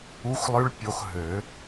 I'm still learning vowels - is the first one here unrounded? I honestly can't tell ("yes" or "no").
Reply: no